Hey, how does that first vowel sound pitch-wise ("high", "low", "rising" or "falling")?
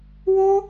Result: high